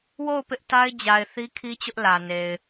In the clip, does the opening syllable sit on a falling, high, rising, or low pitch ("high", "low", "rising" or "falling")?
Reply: falling